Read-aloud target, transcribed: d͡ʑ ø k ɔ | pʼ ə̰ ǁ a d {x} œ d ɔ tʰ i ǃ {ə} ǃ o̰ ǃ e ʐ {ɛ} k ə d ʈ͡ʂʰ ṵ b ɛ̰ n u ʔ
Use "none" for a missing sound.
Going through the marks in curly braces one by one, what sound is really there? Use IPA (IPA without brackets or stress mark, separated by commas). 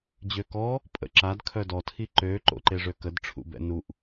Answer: kʰ, ø, ø